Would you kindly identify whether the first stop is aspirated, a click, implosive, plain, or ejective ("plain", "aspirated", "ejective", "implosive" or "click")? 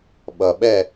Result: implosive